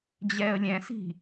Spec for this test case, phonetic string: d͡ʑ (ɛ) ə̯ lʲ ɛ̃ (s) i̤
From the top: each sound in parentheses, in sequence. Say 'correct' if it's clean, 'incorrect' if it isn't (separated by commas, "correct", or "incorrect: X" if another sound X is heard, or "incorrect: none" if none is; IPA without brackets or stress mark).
correct, correct